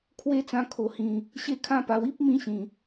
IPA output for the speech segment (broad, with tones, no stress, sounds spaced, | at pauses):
kʰ w e˥˧ t͡s ã˧ kʰ o˨˩ h ĩ˨˩ | ɕ e˥˧ kʰ ã˦ p a˧ w i˦ p̚ m ĩ˧ ɕ ĩ˨˩